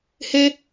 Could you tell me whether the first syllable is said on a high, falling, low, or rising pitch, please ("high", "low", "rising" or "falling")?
high